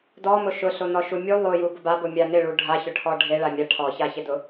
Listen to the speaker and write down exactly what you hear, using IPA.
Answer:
d ɔ m ʊ ʃ ʊ ɬ o n ɔ ʃ u mʲ u lˠ o j u b ʊ b a b o mʲ a n ɪ ɭ u ɖʱ a ç ʊ ʈʰ ɔ ɖʱ e ɭ a mʲ a ʈʰ ɔ ç a ç ɪ d ʊ

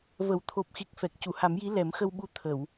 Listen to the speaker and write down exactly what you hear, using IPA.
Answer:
v ə˨˩˨ w t̪ʰ o˨˩ p̚ x i˨˩ k̚ f ɛ˨˩ k̚ c u˨˩˨ h a˨˩˦ m j i˧˥ l ɛ˨˩˦ m x ə˧ w ɓ u˧˥ t̪ʰ ə˨˩˨ w

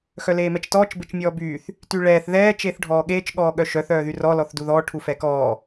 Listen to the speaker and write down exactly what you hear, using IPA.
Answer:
x œ l eː m ɛ t͡ʃ t ɔː t͡ʃ b e t͡ʃ mʲ ɔː b yː θ | t y ɭ ɛː θ ð ɛː t͡ʃ eː θ ɖʱ ɔː ɠ eː t͡ʃ ɠ ɔː ɠ œ ʃ œ θ œː ð y r ɔ l ɔ θ d u ð ɔː ʈʰ u f ɛ k ɔː

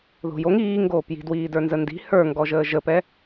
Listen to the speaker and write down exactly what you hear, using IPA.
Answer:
ð o̤ j o ŋ iː ŋ ɡ oː p j i̤ d w iː d ə˞ n z ə n d i̤ h ə˞ ŋ ɡ ɔ ʒ əː ʒ ə p ɛ

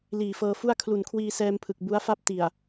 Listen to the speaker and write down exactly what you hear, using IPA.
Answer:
l iː˨˩ f ɤː˧ f u˥˩ a̯ kʰ l u˨˩ n kʰ w iː˧ s ɛː˧ m pʰ ɯ˨˩ k̚ b u˦˥ a̯ f a˥˩ p̚ t i˨˩ a̯

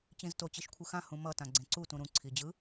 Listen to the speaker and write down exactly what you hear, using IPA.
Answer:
t͡ɕ ĩ z t o t͡ɕ i ʃ kʷʰ ɯ x ã h ũ m ʌ t ã ɡ͡ǀ ẽ ǀ u t ũ ɾ ũ ǀʰ i d͡ʑ ɯ

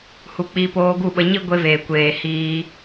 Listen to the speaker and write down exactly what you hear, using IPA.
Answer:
h u˨ k͡p i˧ p oː˧ ɡ u˦˨ ɓ ə˧ ɲ i˦ ɡʷ e˧ v eː˨ kʷ eː˨ h iː˧

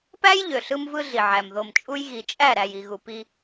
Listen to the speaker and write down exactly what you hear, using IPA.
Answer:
p æ˦ j ʎ ø˨ ɬ ɯ˦ m v ɯ˦ ɮ i˨ ʕ æ˨ m ð o˨ m t͡ʃʼ u˦ j ɣ i˨ t͡ʃʼ æ˦˨ ɾ æ˨ j i˨ ɣ u˨ p i˦

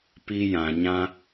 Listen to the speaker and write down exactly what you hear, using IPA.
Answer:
p i˦ j ã˧ ɲ ã˦

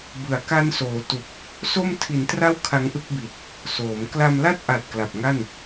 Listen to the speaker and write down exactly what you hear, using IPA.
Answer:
b ɯ˨˩ a̯ k a˦˥ n s oː˩˦ t u˨˩ k̚ | s o˥˩ m tʰ i˩˦ n t r a˥˩ w kʰ a˦˥ ŋ ʔ ɯ˥˩ k̚ b i˨˩ t̚ | s oː˩˦ m k l a˧ m l a˥˩ t̚ ʔ a˨˩ t̚ k l a˨˩ p̚ ŋ a˥˩ n

